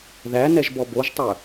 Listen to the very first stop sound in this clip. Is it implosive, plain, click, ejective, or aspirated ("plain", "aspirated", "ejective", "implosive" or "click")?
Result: plain